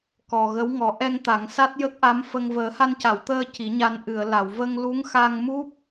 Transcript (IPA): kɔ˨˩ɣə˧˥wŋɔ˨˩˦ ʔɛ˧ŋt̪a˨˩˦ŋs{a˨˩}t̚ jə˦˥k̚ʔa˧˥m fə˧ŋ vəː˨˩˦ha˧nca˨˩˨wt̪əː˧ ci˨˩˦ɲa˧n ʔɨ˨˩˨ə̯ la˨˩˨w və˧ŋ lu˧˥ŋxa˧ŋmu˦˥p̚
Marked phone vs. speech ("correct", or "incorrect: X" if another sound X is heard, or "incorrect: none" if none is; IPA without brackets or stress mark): incorrect: a˦˥